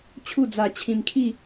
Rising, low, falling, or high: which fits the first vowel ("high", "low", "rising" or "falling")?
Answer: falling